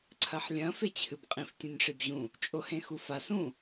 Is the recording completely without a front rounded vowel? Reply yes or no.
yes